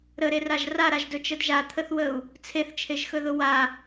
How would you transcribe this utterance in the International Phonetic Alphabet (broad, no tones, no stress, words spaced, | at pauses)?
ɾəɾeraʒ raɾaʒdɵt͡ʃəd ʒat̪ʰəθwəu̯ | t͡sʰeθt͡ʃʰeʒxɵðʊ wa